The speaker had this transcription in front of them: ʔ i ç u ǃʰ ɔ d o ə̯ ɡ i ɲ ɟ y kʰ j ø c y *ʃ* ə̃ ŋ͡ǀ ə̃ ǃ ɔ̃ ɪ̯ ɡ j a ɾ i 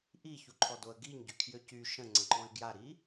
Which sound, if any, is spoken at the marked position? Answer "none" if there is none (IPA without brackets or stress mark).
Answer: ʃ